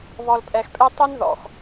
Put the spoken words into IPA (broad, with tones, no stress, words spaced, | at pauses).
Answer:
βɔ˨lpʼɛ˨xpʼɛ˦ tˤɵ˦nðɔ̰˨x